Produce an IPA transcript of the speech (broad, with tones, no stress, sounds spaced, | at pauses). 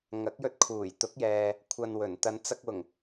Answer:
ŋ ɐ˨˥ k̚ j ɵ˧ t̚ kʰ uː˨˩ j t̪ ʊ˨˥ k̚ j ɛː˨ | kʷʰ ɐ˧ n w ɵ˨˩ n t̪ ɐ˨˧ n t͡s ɐ˧ k̚ w ʊ˨˩ ŋ